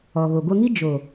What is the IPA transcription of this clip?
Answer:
ɔ˨ɣo˨ɡʷə˧ŋi˦ d͡ʒo˨

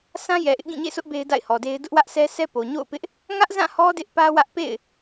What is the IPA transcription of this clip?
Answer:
sã˦jɛ˨ʔɪ˦ʔ ɡĩ˦˨ɲḛ˦˨sʰʊ˦ʔ be˦ɪ̯da̰˦˨ɪ̯hɔ˨de˦ɪ̯ dʊ˦ʔwä˦ʔsʰɛ˦ sʰɛ˦po˨ ɲo̰˦˨ʊ̯pɪ˦ʔ | ŋä˦ʔzã˦˨ hɔ˦ dɪ˦ʔpä˦wä˦ʔ pḛ˦˨ɪ̯

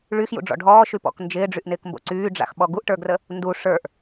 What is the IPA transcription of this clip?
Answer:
ɭyxjṵɖ͡ʐɔ̰ ɖʱɔːʃypɔ̰k nd͡ʒɪːɖ͡ʐyʔnɪːkmbo̰ ǀyːɖ͡ʐa̰xɓɔ ɡuʔʈə˞ɡrə | ndu ʂə˞ʔ

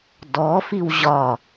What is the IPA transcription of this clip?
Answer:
dɔfiw ʑɒ

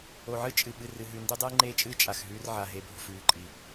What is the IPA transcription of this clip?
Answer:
o˨ʕɨ˦ t͡ʃʼɨ˨ ɓɨ˨rɨ˨ɦʉ˨ ndʉ˦dˤɨː˦ŋ͡ǃeː˦t͡ʃʼɨː˦ t͡ʃʼa˨xɦʉː˦r ʕa˨ɦe˨bʱo̤˨f ʉː˨ǃʼi˨

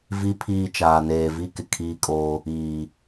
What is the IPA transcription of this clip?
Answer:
vi˦pʰiː˦˨ t͡ʃaː˨neː˨vi˦ kɪ˨kʰiː˦kʼoː˦ | iː˨

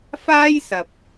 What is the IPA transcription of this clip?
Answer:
faː˥jsɐ˨p̚

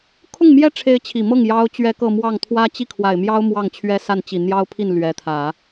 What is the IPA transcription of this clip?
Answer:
kʰʊ˥˩ŋmjɛ˥ʈ͡ʂʰe˧˥ɪ̯ t͡ɕʰi˨˩mɤ˥˩ŋ jɑ˥ʊ̯t͡ɕɥɛ˥kɤ˥˧ mwɑ˥˩ŋ t̪ʰwä˥ t͡ɕi˥˩kʰwa˨˩ɪ̯mjɑ˥ʊ̯ mwɑ˥˩ŋt͡ɕʰɥɛ˥sa˥˩nt͡ɕi˨˩ n̪jɑ˥ʊ̯pʰi˥˩n lɥɛ˧˥t̪ʰä˨˩˦

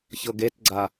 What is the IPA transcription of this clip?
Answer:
çɤɡetɡ͡ǀa

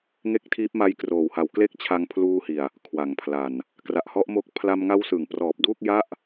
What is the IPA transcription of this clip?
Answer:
ŋe˥˩k̚tʰiː˦˥p̚ma˦˥j kroː˨˩wha˨˩wkle˥˩k̚ t͡ɕʰa˧ŋpʰluː˧hi˨˩a̯ | kʰwa˩˦ŋpʰla˨˩n | kra˨˩ʔhɔ˦˥ʔmo˦˥k̚ pʰla˧m ŋa˦˥wsɯ˩˦ŋ prɔː˨˩p̚duː˥˩k̚ ja˥˩ʔ

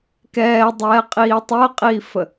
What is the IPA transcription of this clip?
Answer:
kɛːdˤɛːqʼiː tˤəːqʼiːfə

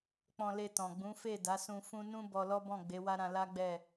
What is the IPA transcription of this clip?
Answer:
k͡pɔ̃˧le˧tɔ̃˨ ɡ͡bũ˨˦fe˦˨ da˨˦sũ˧ fũ˦ nũ˦ bɔ˧lɔ˦bɔ̃˦˨ ɡ͡be˨˦wa˦ɾã˧ la˦ɡ͡bɛ˦˨

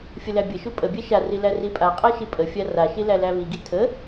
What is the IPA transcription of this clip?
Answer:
fʲəlæbʲəʃu pʼəbʲæ ʃari læripʼaqʼæ ʃipʼəfʲa raʃi lælæβiɡi tʰə

